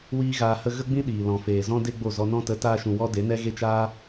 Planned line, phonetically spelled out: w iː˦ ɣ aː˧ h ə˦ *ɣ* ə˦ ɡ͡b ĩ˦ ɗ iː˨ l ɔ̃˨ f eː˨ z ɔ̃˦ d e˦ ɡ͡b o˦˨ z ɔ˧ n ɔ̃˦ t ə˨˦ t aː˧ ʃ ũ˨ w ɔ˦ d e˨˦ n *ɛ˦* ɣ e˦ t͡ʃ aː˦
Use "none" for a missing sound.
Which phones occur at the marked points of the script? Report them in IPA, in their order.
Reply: ɣ, ɛ˦

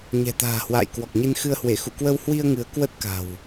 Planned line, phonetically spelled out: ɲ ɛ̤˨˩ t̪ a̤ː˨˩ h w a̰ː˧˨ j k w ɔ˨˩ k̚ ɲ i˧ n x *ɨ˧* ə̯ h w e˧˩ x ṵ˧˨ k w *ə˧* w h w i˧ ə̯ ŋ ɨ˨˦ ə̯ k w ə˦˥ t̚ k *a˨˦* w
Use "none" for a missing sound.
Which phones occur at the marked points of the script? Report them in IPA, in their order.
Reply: ɨ˧, ə˧, a̤˨˩

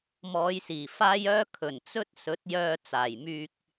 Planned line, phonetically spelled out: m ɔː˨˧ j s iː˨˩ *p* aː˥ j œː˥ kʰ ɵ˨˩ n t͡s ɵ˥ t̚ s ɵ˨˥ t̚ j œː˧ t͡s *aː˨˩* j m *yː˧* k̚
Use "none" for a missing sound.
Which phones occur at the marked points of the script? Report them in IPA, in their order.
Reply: f, aː˨˩, yː˧

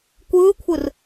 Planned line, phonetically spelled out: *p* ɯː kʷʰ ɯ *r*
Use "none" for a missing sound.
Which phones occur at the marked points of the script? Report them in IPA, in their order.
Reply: kʷ, r

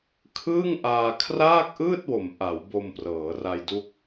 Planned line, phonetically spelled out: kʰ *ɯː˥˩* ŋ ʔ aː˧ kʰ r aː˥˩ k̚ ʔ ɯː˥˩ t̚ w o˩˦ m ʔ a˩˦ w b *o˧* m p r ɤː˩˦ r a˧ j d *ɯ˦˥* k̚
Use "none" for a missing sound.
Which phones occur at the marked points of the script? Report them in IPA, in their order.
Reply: ɯː˥˩, o˧, u˦˥

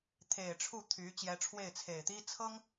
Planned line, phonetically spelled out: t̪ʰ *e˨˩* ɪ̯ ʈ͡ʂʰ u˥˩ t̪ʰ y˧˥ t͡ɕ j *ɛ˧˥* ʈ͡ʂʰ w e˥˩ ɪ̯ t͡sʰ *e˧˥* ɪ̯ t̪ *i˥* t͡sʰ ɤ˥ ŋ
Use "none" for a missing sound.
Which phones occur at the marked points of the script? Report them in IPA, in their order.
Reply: e˨˩, ɛ˧˥, e˨˩, i˥

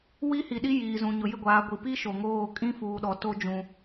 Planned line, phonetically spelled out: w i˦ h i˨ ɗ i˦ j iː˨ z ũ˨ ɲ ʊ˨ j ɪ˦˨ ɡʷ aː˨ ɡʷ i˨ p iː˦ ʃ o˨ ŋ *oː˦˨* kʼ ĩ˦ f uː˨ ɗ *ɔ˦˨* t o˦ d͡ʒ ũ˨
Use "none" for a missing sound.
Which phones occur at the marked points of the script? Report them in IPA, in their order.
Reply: oː˦˨, ɔ˨

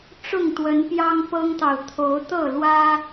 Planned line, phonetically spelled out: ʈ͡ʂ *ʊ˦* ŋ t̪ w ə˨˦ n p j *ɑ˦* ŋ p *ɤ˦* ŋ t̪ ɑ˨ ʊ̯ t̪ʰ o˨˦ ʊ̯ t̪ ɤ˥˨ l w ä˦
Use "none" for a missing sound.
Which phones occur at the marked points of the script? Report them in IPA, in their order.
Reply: ʊ˥˨, ɑ˦, ɤ˦

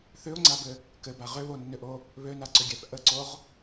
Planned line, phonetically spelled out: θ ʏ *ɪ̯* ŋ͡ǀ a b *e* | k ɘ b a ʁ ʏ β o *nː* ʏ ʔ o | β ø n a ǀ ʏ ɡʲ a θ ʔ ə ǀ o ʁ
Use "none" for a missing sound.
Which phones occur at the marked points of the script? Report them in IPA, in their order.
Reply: ʊ̯, ɘ, nː

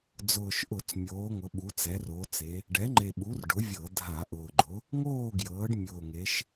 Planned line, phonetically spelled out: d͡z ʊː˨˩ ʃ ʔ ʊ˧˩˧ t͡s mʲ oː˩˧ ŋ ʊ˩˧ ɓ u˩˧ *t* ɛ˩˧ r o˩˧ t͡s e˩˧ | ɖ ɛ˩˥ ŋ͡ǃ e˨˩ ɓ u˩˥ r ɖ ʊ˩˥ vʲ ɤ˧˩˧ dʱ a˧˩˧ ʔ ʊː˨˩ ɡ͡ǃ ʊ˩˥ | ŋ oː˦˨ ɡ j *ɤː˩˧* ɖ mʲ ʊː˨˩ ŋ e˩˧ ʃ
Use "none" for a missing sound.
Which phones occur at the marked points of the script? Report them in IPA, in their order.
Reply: t͡s, ɤː˩˧

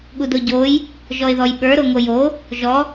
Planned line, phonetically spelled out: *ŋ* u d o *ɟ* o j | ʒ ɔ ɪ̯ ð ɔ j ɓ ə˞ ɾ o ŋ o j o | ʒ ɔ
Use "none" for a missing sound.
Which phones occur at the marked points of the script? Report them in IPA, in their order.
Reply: ɠ, ɟ

